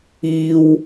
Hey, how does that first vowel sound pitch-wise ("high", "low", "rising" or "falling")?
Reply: high